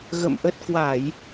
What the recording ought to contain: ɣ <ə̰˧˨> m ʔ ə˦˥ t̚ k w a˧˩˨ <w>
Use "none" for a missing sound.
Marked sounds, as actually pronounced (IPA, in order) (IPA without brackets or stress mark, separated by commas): ə̰˧˨, j